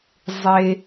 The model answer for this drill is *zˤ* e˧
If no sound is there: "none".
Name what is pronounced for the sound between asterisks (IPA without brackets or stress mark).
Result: zˤ